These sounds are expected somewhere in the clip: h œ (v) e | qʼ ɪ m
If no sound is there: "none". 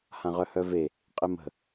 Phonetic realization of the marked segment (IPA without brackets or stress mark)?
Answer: v